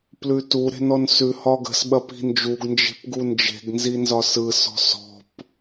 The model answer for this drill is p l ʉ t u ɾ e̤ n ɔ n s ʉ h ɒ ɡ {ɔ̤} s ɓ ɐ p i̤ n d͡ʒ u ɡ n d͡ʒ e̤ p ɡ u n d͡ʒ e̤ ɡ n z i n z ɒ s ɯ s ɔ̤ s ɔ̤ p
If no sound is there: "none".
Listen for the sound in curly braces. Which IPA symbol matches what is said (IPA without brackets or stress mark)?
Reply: ə̤